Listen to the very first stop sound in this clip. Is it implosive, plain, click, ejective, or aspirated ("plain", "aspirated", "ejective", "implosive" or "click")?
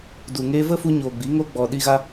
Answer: plain